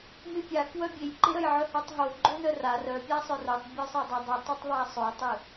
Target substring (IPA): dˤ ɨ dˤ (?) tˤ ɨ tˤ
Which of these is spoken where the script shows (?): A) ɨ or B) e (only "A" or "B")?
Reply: A